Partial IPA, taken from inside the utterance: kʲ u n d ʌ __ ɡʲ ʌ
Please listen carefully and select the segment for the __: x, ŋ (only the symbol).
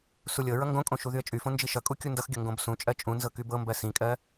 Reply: x